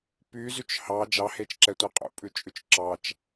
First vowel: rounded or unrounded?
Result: rounded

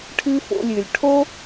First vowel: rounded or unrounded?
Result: unrounded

